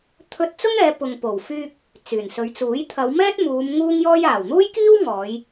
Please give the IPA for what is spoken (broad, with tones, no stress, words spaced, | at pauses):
t̪ʰɵ˧t̚t͡sʊ˥ŋɛː˨˧ pʊ˨ŋpo˨˩wfyː˧k̚ | t͡syː˨˩nsɵ˨˧ɥt͡suː˨˥j t̪ʰɐ˨˧wmɛː˥t̚muː˨˧m ŋuː˥ŋjɔː˥j aː˨˩wn̪uː˥jkiː˥w ŋɔː˨˧j